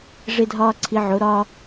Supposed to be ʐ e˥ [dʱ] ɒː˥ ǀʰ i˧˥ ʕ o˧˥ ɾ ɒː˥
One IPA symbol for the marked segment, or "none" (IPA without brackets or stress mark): dʱ